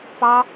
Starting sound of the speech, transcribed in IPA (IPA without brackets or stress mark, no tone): p